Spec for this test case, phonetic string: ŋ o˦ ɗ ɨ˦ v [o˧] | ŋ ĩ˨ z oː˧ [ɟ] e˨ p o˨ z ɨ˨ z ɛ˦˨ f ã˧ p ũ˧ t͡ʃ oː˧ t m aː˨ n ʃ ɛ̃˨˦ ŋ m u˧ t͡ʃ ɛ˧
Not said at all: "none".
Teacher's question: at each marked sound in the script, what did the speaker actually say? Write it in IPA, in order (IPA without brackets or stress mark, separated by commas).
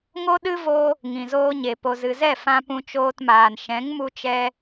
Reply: o˧, ɲ